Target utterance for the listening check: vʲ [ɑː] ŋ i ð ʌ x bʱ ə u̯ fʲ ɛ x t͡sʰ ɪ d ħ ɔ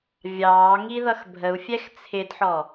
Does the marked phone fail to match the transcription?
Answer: no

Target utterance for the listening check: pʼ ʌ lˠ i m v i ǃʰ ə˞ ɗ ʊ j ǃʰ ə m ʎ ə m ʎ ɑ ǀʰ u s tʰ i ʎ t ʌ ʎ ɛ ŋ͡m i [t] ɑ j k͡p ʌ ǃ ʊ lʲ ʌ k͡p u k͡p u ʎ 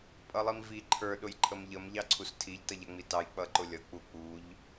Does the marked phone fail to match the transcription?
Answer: no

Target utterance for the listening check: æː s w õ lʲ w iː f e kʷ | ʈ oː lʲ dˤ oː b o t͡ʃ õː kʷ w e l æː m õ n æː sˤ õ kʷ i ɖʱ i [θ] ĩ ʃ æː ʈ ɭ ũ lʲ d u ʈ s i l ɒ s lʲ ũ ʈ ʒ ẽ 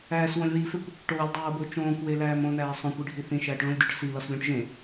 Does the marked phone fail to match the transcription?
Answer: no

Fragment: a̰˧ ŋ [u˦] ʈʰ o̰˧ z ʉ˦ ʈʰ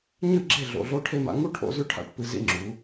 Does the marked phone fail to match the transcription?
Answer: no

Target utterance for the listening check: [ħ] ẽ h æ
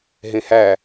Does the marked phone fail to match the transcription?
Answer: yes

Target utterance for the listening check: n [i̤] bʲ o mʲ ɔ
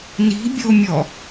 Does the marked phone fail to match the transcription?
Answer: no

